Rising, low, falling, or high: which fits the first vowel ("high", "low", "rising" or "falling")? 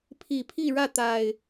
low